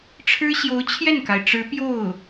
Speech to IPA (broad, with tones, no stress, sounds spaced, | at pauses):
ʈ͡ʂʰ ɻ̩˥ ɕ j o˧˥ ʊ̯ t͡ɕʰ j ɛ˥˩ n k a˩ ɪ̯ ʈ͡ʂ ɻ̩˧˥ p j o˥˩ ʊ̯